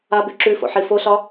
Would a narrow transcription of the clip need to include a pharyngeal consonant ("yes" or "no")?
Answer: yes